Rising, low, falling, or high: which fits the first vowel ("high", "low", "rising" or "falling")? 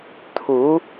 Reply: rising